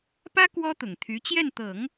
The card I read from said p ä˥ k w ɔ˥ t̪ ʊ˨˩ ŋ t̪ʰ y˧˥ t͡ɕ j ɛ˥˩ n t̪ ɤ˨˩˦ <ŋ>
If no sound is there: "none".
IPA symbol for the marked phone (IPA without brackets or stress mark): ŋ